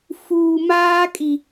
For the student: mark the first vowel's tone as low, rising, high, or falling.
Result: low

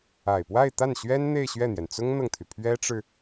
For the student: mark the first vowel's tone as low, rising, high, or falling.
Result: low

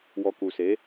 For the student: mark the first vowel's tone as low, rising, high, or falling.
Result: low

